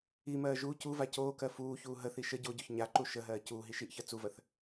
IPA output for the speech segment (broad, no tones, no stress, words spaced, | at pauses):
imɜː ʒu cuva coːkɜ fuːçuː ɦəθi ʃə ɟoɟoç ɲaǃu ʃəɦɜː cuːɦi ʃiʔçɜ t͡suvɜθ